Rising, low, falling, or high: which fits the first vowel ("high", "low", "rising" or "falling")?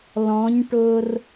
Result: rising